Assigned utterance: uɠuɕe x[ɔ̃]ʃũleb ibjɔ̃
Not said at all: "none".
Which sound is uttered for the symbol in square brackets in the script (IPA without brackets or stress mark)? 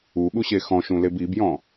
ɔ̃